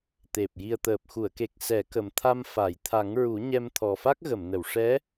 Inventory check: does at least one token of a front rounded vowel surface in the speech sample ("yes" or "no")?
no